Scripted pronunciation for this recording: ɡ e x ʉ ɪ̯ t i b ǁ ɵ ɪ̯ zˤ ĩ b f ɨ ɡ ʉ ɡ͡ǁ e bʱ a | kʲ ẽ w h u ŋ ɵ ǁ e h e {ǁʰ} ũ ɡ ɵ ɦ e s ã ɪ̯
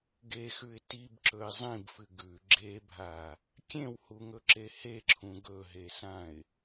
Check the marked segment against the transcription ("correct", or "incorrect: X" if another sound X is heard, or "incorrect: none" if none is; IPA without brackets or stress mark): correct